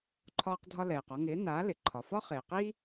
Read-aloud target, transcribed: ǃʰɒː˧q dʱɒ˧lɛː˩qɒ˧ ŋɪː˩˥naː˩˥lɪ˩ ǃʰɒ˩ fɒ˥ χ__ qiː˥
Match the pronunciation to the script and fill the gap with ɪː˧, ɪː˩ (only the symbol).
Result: ɪː˩